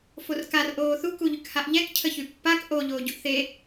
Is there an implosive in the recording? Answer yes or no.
no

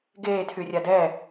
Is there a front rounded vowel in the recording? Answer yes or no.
yes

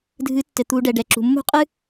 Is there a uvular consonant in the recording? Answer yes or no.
yes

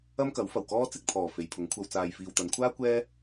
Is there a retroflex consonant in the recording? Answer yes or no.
no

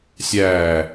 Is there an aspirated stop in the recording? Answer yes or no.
no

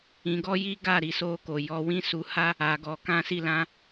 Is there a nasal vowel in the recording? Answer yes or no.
yes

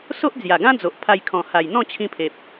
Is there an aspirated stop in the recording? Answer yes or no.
yes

